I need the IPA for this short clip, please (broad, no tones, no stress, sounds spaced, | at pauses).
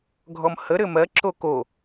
ɡʱ ɔ m h ə ɾ ɘ m ɜ ǁ o k o